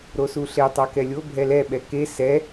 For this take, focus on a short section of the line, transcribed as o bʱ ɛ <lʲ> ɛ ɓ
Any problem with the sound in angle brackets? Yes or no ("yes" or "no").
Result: yes